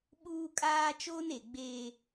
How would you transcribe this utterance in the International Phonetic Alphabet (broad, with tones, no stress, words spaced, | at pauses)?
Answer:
ɓuː˦kʼaː˦ t͡ʃoː˦ne˨ɡ͡beː˦